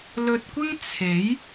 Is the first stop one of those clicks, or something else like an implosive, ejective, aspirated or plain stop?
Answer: plain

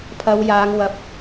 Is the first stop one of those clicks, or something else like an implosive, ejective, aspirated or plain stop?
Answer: aspirated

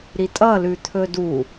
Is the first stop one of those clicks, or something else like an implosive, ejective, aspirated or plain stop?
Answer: ejective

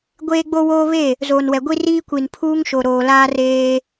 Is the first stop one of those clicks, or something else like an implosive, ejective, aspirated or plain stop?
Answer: plain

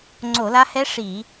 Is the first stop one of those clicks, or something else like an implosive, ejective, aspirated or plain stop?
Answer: click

